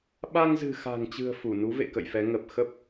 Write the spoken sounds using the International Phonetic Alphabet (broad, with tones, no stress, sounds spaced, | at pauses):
ɓ a˧ ŋ z ɨ̤˨˩ x a̤˨˩ ŋ t͡ɕ ɨ̤˨˩ ə̯ f u˧˩ n u˨˦ v ḛ˧˨ k ə̰˧˨ j f ɛ˨˦ ŋ ə˨˩ p̚ x ə˦˥ p̚